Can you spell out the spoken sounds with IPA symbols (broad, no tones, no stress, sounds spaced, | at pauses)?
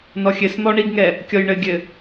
n ɔ xʲ ɘ s n̪ ɔ ɳ i ɡ ŋ ɛ | kʲ ɔ j ɳ ɘ ɡʲ ɘ